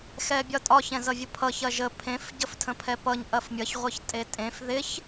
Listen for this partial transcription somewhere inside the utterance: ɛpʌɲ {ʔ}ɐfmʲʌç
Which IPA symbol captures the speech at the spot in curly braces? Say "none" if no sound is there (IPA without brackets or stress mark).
ʔ